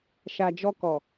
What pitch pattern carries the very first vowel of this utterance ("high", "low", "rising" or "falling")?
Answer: low